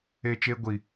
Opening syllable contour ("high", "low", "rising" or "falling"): high